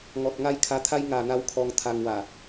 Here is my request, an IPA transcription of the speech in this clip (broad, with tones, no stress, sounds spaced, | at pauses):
ŋ ɔ˨ t̚ ŋ a˥˧ j kʰ a˧ t̪ʰ a˦ j ŋ a˨˩ n̪ a˦ w kʰ ɔ˧ ŋ t̪ʰ a˧ ŋ w a˨˩